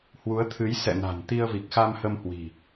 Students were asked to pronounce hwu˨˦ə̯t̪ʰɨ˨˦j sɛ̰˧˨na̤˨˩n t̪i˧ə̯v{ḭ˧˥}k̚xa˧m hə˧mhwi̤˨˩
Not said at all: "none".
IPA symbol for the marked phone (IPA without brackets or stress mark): i˨˩